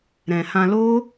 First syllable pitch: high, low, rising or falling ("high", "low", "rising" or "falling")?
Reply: low